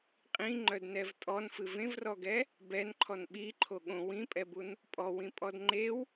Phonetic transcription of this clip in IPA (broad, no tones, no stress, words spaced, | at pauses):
qʼĩŋ͡ǃœdnɛv tʼɔnfɨv ẽvrɔɡɛ | bɛnǃʰɔn ɓiǃʰo ɠõ wĩpʼɛbun | pʼɔwĩpʼɔd ŋ͡ǃew